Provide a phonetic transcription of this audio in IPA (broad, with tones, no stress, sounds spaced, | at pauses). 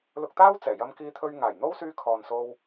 l ʊ˧ k̚ t̪ aː˥ w t͡s ɛː˨˩ j ɐ˧ m k iː˧ t̪ʰ ɵ˧ ɥ ŋ aː˨˩ j n̪ o˥ w s yː˧ kʰ ɔː˨ n s o˧ w